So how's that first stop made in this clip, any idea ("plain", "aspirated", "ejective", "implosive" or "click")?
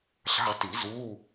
plain